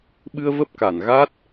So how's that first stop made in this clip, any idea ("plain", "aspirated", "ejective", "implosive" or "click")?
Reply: implosive